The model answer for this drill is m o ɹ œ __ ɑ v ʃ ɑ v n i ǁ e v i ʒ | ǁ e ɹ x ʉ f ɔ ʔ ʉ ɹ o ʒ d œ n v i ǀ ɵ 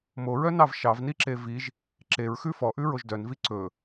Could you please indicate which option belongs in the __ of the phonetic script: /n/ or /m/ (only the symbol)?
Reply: n